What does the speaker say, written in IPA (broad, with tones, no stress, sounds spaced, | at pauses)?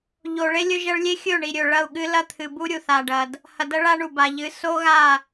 ʎ o˨ ɭ e˦ lʲ ɵ˦ ʒ ɐ˦ ɭ lʲ e˦ xʲ ɵ˦˨ ɳ i˨ ɾʲ ɵ˨ ɭ ɐ˦˨ u̯ ɠ ɨ˦ l ɐ˦ t̪ʰ ɨ˨ b u˦ ɾʲ u˨ θ a˨ ɖ ɐ˨ d | h ɐ˨ d ɐ˦ ɭ a˦ ɳ u˨ b a˨ ʎ ɨ˨˦ s o˦ ɣ a˦˨